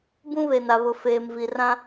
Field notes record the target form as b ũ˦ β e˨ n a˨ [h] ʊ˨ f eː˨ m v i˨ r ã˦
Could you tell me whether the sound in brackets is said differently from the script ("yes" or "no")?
yes